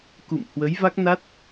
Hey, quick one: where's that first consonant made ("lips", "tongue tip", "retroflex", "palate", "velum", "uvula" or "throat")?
velum